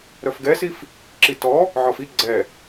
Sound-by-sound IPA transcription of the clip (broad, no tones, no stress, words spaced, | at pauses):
ɾœfɡɛsif | ǁitɔ | ʕɔfi ɡ͡ǀɛ